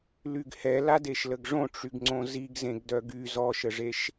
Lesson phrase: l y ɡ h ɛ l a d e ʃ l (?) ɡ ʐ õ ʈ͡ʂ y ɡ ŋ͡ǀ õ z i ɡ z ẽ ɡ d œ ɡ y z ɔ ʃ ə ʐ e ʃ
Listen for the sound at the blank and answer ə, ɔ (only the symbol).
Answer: ə